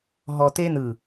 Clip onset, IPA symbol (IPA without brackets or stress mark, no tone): ɦ